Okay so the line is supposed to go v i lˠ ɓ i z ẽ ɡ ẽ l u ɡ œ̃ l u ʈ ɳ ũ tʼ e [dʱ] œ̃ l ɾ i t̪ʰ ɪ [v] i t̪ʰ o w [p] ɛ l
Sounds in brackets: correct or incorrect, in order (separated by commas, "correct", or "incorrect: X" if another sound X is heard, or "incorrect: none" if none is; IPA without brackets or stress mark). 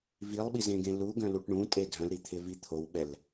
correct, correct, incorrect: ɓ